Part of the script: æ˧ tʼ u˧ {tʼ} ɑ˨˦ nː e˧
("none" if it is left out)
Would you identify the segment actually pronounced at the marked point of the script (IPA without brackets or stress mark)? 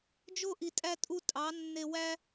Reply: tʼ